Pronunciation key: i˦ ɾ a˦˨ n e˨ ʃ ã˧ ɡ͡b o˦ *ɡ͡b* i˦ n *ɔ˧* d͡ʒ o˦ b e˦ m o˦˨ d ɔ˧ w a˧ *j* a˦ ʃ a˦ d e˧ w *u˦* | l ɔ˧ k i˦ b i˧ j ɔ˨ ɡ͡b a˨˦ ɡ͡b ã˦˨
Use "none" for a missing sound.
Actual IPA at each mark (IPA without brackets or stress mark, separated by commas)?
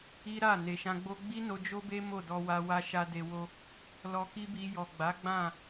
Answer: ɡ͡b, o˧, w, o˦